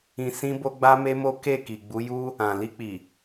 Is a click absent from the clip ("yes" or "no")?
yes